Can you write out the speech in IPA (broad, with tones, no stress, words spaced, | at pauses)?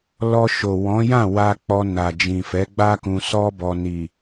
lɔ˧ʃo˨ wɔ̃˨˦jã˦˨ wa˧ k͡pɔ˧na˨ d͡ʒĩ˨fɛ˨˦ɡ͡ba˦kũ˧ sɔ˦bɔ˧ ni˨